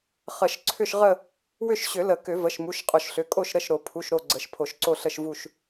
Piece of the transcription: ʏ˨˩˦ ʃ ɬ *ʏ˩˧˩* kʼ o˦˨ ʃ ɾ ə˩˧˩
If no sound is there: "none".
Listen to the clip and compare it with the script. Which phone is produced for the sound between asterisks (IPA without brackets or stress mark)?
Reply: ʏ˩˧˩